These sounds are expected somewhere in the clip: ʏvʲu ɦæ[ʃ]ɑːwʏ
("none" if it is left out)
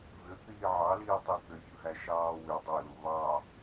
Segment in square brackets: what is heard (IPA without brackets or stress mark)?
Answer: ʃ